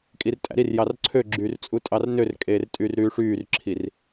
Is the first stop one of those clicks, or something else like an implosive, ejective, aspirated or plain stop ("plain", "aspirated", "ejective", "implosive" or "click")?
ejective